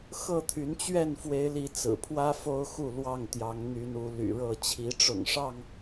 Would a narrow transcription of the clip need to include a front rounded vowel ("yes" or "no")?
yes